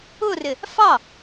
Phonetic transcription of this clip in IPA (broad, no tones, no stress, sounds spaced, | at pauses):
ʊ r ɪ | f ɑ